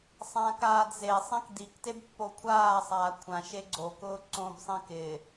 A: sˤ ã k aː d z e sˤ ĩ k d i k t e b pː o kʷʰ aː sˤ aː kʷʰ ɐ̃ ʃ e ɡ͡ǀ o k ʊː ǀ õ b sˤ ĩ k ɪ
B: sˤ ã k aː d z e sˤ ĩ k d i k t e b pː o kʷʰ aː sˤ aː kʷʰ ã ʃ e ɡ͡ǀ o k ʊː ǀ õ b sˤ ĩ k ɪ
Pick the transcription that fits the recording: B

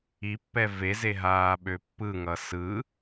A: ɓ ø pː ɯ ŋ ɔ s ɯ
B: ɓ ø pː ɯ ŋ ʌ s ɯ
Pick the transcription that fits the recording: B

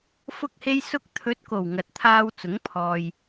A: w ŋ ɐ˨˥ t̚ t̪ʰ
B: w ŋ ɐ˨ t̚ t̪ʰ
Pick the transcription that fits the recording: B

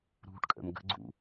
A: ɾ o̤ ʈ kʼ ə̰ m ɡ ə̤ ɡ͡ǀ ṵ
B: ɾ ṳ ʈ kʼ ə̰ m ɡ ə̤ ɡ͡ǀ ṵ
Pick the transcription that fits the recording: B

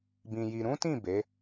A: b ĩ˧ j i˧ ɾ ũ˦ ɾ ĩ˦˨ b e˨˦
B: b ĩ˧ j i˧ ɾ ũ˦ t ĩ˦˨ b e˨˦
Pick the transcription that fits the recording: B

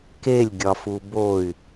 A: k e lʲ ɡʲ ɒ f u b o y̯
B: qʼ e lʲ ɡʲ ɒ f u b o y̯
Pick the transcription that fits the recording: A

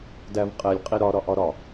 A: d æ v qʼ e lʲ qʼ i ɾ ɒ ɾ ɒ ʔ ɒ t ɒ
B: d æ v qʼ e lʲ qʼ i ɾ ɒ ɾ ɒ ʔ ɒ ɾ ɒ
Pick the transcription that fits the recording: B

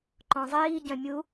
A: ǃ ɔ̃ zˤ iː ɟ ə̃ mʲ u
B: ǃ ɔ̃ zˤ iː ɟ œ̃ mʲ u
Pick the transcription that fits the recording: B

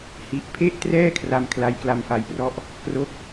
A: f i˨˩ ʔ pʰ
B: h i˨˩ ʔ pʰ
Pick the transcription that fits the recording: B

